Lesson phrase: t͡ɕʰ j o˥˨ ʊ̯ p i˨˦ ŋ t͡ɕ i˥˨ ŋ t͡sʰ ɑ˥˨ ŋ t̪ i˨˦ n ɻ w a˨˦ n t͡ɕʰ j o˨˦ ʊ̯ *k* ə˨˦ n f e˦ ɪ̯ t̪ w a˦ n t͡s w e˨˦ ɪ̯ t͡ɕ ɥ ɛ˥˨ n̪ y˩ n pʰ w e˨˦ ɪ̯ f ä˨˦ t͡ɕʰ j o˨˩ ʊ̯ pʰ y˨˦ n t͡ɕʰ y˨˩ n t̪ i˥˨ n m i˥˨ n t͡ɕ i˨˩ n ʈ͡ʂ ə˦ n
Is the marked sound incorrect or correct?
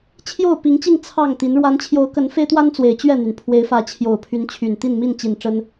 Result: correct